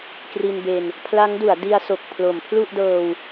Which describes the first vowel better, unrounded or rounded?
unrounded